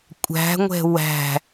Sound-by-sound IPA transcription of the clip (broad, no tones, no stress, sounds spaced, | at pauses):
kʷʼ æ̤ ŋʷ ɛ̤ w æ̤